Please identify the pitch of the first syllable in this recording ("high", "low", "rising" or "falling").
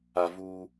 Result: low